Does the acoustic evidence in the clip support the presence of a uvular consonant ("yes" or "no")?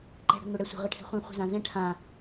yes